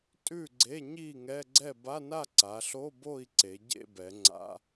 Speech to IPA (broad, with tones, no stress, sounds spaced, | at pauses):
tʼ ʉ˥˨ ɡ͡ǀ e˧˥˧ ɲ i˥˨ ŋ ɛ˧˥˧ ɡ͡ǀ ɛ˥˨ b a˧˥˧ n a˥˨ ǀ a˩˧ ɬ o˧˥˧ b o˥˨ i̯ ǀ e˩˧ ɟ ḛ˥˨ b ɛ˩˧ ŋ͡ǀ a̰˧˥˧